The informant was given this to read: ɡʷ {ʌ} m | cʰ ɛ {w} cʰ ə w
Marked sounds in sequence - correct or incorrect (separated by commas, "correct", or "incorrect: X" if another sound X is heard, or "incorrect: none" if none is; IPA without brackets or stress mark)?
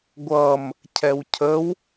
correct, correct